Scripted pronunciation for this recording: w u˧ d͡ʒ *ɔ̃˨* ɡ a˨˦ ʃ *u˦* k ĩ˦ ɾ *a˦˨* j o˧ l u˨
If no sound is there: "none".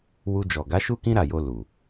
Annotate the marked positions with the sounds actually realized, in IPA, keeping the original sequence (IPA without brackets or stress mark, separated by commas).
ɔ˨, u˦, a˦˨